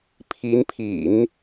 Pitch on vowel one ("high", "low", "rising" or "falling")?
rising